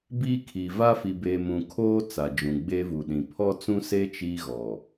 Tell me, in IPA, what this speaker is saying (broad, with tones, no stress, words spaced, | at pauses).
biː˦kʰi˨ va˦fi˨beː˨mũ˨ kʰoː˦ t͡sa˨d͡ʒũ˨ ɡ͡be˦vu˨ɗĩ˨ pʰɔ˦t͡sũ˦se˦ t͡ʃiː˦ɣɔ˨